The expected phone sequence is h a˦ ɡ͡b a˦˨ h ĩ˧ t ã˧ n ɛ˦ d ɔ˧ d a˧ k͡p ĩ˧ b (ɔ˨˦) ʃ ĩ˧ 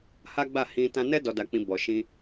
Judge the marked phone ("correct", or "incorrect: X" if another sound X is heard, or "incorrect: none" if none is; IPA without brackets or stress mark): incorrect: ɔ˨